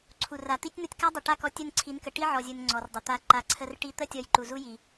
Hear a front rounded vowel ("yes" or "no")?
no